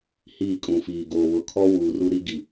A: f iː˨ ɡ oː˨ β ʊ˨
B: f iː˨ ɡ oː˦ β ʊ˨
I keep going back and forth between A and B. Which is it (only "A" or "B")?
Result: A